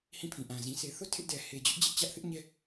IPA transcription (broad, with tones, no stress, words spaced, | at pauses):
hĩ˦˨pʰĩ˨ ʔã˨zĩ˨ sʰe˨θo˦˨ tʰɪ˦ʔdɛ˨ he˨d͡ʑʊ˦ʔ d͡ʑɪ˦ʔt͡ɕä˦ʔ θɪ˦ʔɲɛ˦